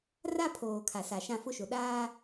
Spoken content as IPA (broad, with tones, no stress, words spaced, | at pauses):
ra˦pʰoː˨kʰa˨ sa˨ʃã˦˨fʊ˦ʃʊ˨ ɗaː˦